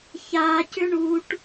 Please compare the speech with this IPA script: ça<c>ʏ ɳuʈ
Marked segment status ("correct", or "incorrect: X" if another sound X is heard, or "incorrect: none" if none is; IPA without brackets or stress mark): correct